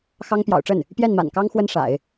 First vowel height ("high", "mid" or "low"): low